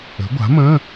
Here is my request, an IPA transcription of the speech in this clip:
ə̤˩˥ ɡʷ a̤˩˥ m ə̃˧˥˧

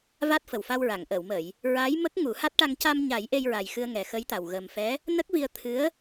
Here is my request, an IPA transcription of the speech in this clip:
v a˦˥ t̚ f ə˨˩ w f a˧ w ɹ a˨˩˨ ŋ ʔ ə˨˩˨ w m ə˨˩˨ j | ɹ aː˧˥ j m ə˦˥ k̚ ŋ u˨˩˦ h a˦˥ t̚ ʈ a˧ ŋ c a˧ m ɲ a˨˩˦ j ʔ e˧ j ɹ a˨˩ j x ɨ˧ ə̯ ŋ ɛ˨˩ x ə˧˥ j t̪ a˨˩ w ɣ ə˨˩ m f ɛ˧˥ | n ə˦˥ k̚ v i˧ ə̯ t̪ʰ ɨ˧˥ ə̯

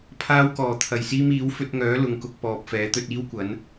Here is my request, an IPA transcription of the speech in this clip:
pʰ aː˧ w k ɔː˨˩ t̪ʰ ɐ˨˩ j s iː˧ m iː˨˥ w f ɵ˧ t̚ ŋ œː˨˥ l ʊ˨ ŋ k ʊ˧ k̚ p ɔː˨ p̚ f ɛː˨˥ t̪ ɵ˧ t̚ iː˥ w kʷ ɐ˨˥ n

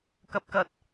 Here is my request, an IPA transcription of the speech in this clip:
k ɐ˧ p̚ k ɐ˧ t̚

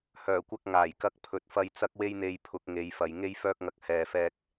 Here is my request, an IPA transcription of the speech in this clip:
h œː˨˩ kʷ ɐ˧ k̚ ŋ aː˨˩ j k ɐ˧ k̚ pʰ ɵ˨˥ t̚ f ɐ˧ j t͡s ɐ˧ k̚ w e˧ j n̪ e˨ j pʰ ʊ˨˥ k̚ ŋ e˨˧ j f ɐ˨ j ŋ e˥ j f œː˥ k̚ ŋ ɐ˧ k̚ h ɛː˨ f ɛː˧ k̚

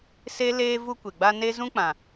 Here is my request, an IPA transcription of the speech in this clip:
s e˦ l eː˦ v u˦ kʷ e˨ ɡ͡b a˦ n e˦ z ũ˦ k͡p ã˨

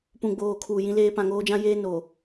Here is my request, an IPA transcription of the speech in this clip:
p ũ˨ ɡ͡b oː˨ kʰ uː˨ j ĩ˦ l eː˦ p ã˨ ŋ oː˦ d͡ʒ ã˦ j eː˦ n o˨

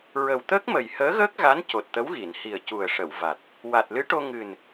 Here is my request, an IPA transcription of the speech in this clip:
ɹ ə˨˩ w t̪ əː˦˥ k̚ m ə˨˩ j h əː˧˥ ɣ əː˦˥ k̚ ɣ a˧˥ n c o˨˩ t̚ t̪ ə˧˥ w ɣ i˨˩˨ n h i˨˩ ə̯ c u˨˩ ə̯ ʂ ə˨˩˨ w v a˨˩ t̚ | w a˨˩ t̚ l ɨ˧˥ ʈ o˧ ŋ ɨ˨˩ n

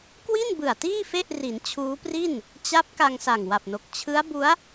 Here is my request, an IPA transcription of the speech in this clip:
k w i˥˩ n b ɯ˨˩ a̯ t iː˥˩ f e˥˩ ʔ r i˩˦ n t͡ɕʰ uː˦˥ p r i˥˩ n | t͡ɕ a˦˥ p̚ k a˧ ŋ s a˨˩ ŋ w a˨˩ p̚ n o˨˩ k̚ t͡ɕʰ ɯ˦˥ a̯ b u˦˥ a̯

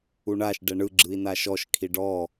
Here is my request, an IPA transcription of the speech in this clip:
u ɳ a ʃ ɖ ɛ ɳ ɯ ɡ͡ǁ ɯ i̯ n a ʃ ɔ ʃ kʰ i ɖ ɔ

